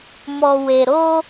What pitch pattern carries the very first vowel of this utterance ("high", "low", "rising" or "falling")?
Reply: low